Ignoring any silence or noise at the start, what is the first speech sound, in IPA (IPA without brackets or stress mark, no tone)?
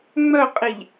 ŋ͡m